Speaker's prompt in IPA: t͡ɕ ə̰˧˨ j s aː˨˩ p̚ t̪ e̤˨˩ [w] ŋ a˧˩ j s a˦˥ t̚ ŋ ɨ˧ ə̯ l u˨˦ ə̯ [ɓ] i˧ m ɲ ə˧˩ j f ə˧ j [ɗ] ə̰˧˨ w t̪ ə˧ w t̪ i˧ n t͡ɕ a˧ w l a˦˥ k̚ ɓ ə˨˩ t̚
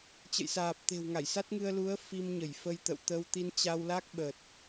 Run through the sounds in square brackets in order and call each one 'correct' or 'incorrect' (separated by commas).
correct, incorrect, incorrect